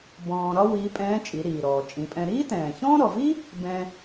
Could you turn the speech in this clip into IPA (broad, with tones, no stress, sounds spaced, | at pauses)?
b ɔ̃ː˧ ɾ ɒ˥ w iː˧˥ pʼ ɛ̃ː˧˥ t͡ʃʼ i˩˧ ɾ iː˩ ɾ ɔː˩ t͡ʃʼ ĩ˩˧ pʼ ɛ̃˧ ɾ iː˥ t ɛ̃ː˩ ç ɔ̃ː˥ ɾ ɔ˩ v i˥ | b ɛ̃˧